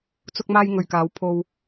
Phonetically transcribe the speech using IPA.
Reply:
t͡s ʊ˧ k̚ m aː˧ j ŋ ɵ˨ ɥ k aː˨˧ w pʰ o˧ w

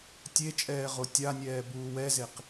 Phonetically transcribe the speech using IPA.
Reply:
tʲ e t͡ʃʼ ɛː ʁ o tʲ a nʲ ɛː b uː w ɛ z e q

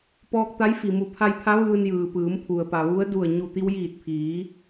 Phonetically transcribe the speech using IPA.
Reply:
p ɔː˧ k̚ t̪ a˧˥ j f i˩ m u˧˩ pʰ a˧ j pʰ a˧˥ ʋ ɯː˧ n j ɯː˩ p ɯː˩˧ m pʰ u˩ ə̯ p a˩ ʋ u˧˥ ə̯ d u˧˩ ə̯ ɲ u˧˩ t̪ i˧ w j iː˧˩ t̚ pʰ iː˩˧

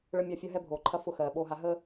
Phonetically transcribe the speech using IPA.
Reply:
ɭ ə˦ mʲ a˦ fʲ ɐ˦ ɦ ɛ˦ bʱ oː˨ ǃʰ ɐ˦ f ʊ˦ x ɜː˨ ɓ oː˦ ɦ a˦ ɦ əː˦

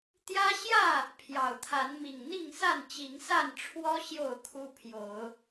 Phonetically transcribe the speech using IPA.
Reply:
t̪ j ä˦ ɕ j ä˥˨ | pʰ j ɑ˨˩ ʊ̯ t̪ʰ a˨˦ n m i˨˩ ŋ n̪ i˥˨ ŋ s a˥˨ n t͡ɕ i˨˦ ŋ s a˥˨ n ʈ͡ʂʰ w ɔ˦ ɕ j o˥˨ ʊ̯ kʰ u˦ pʰ j o˨˦ ʊ̯

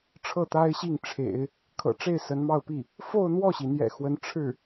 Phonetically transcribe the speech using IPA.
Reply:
ʈ͡ʂʰ ɤ˥˩ t̪ a˥ ɪ̯ ɕ i˥˩ ŋ ʈ͡ʂʰ ḛ˨˩˦ ɪ̯ | kʰ ɤ̰˨˩ ʈ͡ʂ e˥˩ ɪ̯ s ə˧˥ n m ɑ˥˧ ʊ̯ p i˥˩ | f o˥˧ ʊ̯ n̪ w ɔ˥˩ ɕ i˩ n̪ j ɛ̰˨˩ x w ə˧˥ n ʈ͡ʂʰ ɻ̩˥˩

